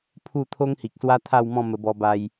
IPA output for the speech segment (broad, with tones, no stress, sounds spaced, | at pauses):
pʰ u˥˧ t̪ʰ o˦ ŋ h i˨ k̚ s w a˦ t̪ʰ a˥˧ w m ɔ̃˥˧ m ə˧ b ɔ˧ b a˧ j